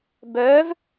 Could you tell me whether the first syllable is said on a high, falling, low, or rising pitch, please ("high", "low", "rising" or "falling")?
rising